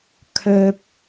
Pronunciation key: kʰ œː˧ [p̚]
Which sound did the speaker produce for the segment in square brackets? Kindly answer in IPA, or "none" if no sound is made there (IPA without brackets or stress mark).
p̚